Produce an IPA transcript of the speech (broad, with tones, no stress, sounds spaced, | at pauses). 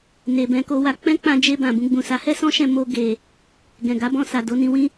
n e˨ b ɛ̃˧ k o˧ w a˧ k͡p ɛ̃˦ k͡p ã˧ d͡ʒ e˧ b ã˨ b ũ˧ ɡ͡b ũ˨ s a˨˦ h ɛ˦ s ɔ̃˦ ʃ ɛ̃˧ m o˧ ɡ e˨ | ɡ ɛ̃˨ ɡ a˨˦ b ɔ̃˦˨ s a˨ d o˨˦ n ĩ˧ w ĩ˦